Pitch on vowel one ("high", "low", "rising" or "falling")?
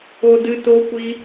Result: low